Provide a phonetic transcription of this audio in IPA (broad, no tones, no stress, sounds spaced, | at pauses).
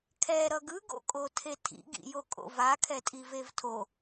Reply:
kʰ ɛ ɾ ʌ ɡ ɯ ɡ o̰ kʼ o tʰ e tʰ ḭ ɡ ḭ j o kʼ o̰ v a kʰ ɛ tʼ i v e v tʰ o